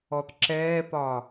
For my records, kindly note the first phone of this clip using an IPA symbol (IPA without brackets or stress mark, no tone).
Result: ɔ